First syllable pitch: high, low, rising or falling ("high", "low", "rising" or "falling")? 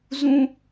high